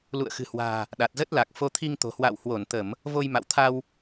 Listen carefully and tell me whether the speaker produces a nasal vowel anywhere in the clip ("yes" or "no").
no